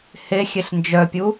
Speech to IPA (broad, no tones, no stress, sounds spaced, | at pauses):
h e xʲ e ɬ n d͡ʒ œ pʲ u